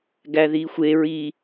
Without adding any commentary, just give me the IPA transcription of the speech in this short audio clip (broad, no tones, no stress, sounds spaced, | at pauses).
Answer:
ɡ æ ð i xʷ e ɹ i